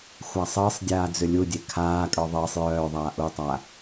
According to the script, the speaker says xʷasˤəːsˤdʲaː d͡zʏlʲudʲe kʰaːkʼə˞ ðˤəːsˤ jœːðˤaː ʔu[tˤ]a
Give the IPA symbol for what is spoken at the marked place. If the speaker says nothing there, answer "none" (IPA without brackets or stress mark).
tˤ